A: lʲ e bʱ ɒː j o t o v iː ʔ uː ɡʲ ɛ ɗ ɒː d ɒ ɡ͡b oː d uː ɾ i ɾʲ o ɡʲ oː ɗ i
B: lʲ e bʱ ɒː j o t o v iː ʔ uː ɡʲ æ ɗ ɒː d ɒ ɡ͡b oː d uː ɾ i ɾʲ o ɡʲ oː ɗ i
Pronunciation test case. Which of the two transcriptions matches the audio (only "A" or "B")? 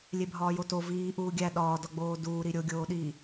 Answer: B